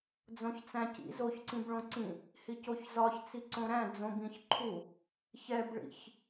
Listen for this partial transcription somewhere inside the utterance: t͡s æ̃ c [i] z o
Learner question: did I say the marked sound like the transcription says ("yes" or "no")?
no